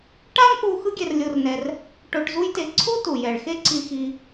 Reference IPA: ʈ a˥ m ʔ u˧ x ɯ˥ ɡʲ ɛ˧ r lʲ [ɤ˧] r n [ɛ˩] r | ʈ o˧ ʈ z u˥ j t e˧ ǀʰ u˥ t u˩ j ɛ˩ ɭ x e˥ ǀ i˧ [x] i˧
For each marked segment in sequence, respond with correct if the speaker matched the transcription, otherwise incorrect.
incorrect, incorrect, correct

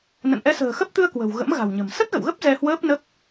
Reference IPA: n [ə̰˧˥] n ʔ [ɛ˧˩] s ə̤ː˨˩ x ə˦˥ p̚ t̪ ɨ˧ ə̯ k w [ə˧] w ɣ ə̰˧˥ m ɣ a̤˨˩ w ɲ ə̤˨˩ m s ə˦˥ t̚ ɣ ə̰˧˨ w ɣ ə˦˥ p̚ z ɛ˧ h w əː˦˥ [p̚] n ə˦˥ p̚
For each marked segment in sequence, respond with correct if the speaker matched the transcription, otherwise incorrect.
incorrect, incorrect, incorrect, correct

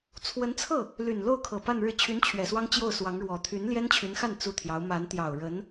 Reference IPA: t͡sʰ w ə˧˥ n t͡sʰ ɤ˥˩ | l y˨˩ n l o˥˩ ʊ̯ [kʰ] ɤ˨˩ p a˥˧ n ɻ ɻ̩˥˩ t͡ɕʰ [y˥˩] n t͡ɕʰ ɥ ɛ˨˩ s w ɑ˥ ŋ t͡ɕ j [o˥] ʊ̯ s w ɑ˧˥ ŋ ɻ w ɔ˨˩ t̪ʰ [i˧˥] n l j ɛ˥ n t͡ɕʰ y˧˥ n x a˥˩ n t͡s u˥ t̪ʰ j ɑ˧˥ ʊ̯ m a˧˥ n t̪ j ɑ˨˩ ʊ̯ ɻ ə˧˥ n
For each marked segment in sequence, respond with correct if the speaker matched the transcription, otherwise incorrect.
correct, incorrect, incorrect, incorrect

